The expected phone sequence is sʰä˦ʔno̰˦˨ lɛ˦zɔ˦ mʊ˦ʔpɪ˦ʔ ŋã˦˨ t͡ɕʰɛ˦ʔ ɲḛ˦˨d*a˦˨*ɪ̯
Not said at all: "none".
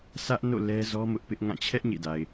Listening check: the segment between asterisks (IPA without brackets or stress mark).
a˨